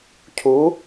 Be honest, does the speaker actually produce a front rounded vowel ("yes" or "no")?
no